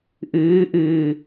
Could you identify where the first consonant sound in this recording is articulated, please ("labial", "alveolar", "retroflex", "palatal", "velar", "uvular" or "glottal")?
glottal